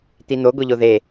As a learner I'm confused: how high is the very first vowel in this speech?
high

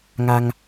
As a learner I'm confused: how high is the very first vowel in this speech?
low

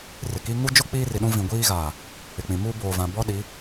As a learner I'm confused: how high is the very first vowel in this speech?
high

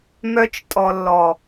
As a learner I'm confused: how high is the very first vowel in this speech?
mid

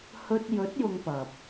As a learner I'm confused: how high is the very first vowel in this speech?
mid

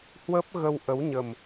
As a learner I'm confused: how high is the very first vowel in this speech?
mid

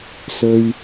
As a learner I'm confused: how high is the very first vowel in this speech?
mid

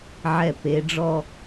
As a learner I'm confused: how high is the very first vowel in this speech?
mid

